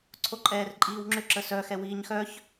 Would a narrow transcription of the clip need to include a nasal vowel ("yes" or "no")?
no